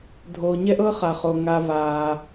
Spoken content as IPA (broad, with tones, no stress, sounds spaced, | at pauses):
dʱ oː˨ ɲ ɛ˥ ʔ ɤ˥ χ a˩ χ o˩ ŋ a˨ v aː˩